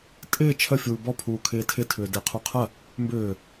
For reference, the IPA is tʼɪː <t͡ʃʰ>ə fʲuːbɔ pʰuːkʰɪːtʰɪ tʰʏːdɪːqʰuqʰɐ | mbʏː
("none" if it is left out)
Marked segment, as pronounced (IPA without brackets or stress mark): t͡ʃʰ